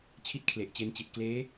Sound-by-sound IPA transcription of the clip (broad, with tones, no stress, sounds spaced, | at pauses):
t͡ɕʰ i˦˥ t̚ kʰ l e˨˩ ʔ t͡ɕ e˧ n t͡ɕ i˨˩ t̚ k l eː˦˥